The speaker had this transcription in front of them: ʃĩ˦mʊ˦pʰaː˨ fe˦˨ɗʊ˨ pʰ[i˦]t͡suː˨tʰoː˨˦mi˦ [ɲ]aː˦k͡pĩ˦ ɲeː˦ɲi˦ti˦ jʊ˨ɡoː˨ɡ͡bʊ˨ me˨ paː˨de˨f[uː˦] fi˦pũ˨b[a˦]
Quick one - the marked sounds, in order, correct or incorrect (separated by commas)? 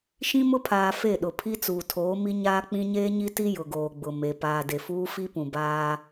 correct, correct, correct, incorrect